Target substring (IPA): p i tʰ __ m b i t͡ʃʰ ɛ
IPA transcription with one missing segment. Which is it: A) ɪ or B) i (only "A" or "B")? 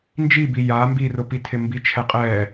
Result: A